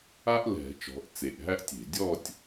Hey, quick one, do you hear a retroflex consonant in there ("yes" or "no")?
no